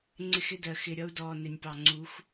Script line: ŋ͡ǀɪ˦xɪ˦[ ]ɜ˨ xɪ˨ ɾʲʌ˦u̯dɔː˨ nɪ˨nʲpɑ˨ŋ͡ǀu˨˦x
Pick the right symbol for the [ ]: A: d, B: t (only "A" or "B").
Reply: A